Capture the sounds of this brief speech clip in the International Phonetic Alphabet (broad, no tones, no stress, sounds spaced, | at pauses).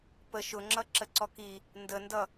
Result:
p ə ʃ ʊ ŋ͡ǁ ʌ ǁ ə ǀ ɔ k i | n d ə n d ʌ